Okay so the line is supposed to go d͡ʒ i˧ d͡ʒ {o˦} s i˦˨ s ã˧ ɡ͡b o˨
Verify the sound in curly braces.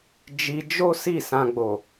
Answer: correct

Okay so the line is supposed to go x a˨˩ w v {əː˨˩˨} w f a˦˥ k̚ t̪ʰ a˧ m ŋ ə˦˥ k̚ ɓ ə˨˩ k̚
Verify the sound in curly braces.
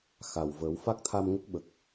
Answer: incorrect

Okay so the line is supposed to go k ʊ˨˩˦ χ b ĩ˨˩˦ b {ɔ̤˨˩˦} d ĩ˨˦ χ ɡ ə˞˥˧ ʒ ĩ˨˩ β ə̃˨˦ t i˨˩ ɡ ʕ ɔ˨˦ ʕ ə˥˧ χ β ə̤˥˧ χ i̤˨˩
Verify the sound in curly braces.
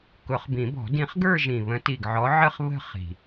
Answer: correct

